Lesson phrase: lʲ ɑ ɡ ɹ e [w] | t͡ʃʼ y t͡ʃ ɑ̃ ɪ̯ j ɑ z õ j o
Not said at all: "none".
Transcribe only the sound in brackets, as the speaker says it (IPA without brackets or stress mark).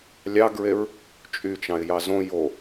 ɹ